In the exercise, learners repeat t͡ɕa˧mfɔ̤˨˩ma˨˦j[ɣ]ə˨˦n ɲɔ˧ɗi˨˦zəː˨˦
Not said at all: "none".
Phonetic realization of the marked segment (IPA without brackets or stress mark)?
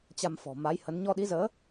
h